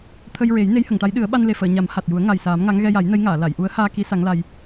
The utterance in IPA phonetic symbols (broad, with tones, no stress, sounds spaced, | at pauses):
t̪ʰ ə˧ j ɹ e˨˩˦ j n e˧˥ j h ə˨˩˨ ŋ ʈ a˧˥ j ɗ ɨ˨˩˦ ə̯ ɓ a˧ n l e˨˩ f əː˨˩˨ ɲ a˨˩˦ m h a˨˩ t̚ j u˨˩˦ ə̯ ŋ a˨˩ j s aː˨˩˦ m ŋ a˧˥ ŋ ɣ ɛ˧ j a˨˩˦ j n ə˧˥ j ŋ aː˨˩˨ l a˨˩˨ j ʔ u˧˥ ə̯ h aː˧ k i˧˥ s a˧˥ ŋ l a˧ j